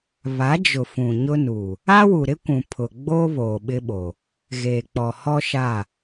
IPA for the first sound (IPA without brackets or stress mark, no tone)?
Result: β